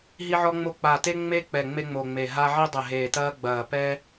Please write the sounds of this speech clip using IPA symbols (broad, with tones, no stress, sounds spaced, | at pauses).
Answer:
ɦ i˥ ʕ ɔ˥ ŋ͡m o˥ k͡p a˧˩ t e˥ ŋ͡m e˥ k͡p ɛ˧˩ ŋ͡m e˥ ŋ͡m o˧˩ ŋ͡m e˧˩ ɦ a˥ ʕ i˥ dˤ ɘ˧˩ ɦ eː˧˩ t ɐː˥ ɡ͡b ɐː˧˩ p ɛ˥